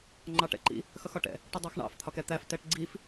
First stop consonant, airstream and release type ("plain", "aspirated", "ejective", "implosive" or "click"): click